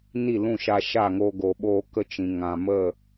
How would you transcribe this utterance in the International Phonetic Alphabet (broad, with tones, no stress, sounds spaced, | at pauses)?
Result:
n i˦˨ l ũ˦˨ ʃ a˧ ʃ a˦˨ ŋ oː˧ ɡ o˨ ɓ oː˧ k ə˦ t͡ʃ ĩ˨ ŋ ã˨ m ə˦˨